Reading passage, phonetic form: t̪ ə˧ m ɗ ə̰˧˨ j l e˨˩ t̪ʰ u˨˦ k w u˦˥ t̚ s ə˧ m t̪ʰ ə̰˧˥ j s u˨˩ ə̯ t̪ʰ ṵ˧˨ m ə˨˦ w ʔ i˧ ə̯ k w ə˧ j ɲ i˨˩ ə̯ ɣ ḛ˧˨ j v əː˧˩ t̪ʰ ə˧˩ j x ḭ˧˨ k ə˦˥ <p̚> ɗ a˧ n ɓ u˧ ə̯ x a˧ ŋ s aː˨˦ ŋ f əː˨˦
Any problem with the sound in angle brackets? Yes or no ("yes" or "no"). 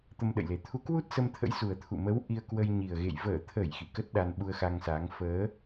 yes